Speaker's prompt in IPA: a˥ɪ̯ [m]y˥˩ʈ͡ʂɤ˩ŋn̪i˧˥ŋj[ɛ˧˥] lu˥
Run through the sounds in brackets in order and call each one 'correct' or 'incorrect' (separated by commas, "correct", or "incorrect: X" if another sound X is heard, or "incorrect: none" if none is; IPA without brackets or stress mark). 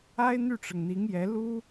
incorrect: n̪, correct